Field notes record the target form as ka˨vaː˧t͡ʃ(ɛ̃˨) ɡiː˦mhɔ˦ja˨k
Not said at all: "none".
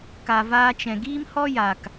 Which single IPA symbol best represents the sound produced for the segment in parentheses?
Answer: ɛ̃˨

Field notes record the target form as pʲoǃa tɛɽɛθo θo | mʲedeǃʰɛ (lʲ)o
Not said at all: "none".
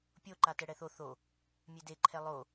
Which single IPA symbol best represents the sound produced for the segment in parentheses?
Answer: lˠ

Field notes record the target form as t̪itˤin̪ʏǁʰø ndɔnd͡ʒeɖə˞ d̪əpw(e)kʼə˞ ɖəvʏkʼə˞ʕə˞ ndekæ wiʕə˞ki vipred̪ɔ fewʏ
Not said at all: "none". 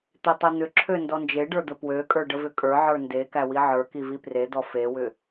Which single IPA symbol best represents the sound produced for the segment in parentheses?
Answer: ø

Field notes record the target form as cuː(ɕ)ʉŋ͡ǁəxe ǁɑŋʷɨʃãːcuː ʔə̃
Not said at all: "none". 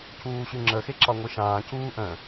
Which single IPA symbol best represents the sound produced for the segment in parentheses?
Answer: ɕ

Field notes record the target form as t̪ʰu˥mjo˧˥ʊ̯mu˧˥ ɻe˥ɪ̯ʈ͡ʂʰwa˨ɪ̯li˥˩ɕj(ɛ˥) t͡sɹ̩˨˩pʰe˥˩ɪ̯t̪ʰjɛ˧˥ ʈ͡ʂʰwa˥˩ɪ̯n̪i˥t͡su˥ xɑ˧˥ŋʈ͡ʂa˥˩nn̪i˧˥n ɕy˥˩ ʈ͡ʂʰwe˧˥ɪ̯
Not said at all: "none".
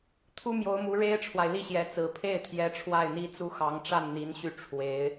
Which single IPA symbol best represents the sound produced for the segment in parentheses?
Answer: ɛ˧˥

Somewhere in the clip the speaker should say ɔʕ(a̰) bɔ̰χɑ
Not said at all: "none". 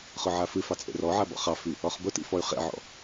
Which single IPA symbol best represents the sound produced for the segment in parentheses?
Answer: a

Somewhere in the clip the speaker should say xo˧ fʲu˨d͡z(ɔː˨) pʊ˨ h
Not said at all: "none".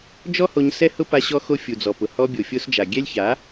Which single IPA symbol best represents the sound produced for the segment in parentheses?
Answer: ɔ˨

